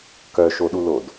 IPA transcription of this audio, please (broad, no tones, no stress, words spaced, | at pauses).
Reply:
kœʃoɗulod